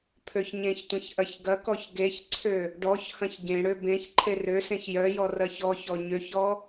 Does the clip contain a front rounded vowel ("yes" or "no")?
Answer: yes